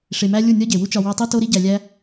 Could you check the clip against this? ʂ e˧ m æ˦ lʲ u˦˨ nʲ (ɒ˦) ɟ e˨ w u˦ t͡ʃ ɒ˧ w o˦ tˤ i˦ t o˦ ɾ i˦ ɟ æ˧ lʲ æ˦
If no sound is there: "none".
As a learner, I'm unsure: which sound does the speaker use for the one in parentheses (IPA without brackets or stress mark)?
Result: ɒ˦